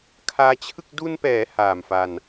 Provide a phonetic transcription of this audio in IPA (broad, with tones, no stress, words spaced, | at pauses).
kʰaː˧t͡ɕʰɯ˥˩k̚ du˧npɛː˩˦ haː˨˩mfa˧n